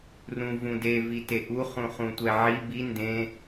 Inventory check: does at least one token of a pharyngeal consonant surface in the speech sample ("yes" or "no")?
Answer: yes